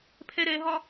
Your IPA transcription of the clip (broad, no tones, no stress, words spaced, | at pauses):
pʰɛɾɛɦɒ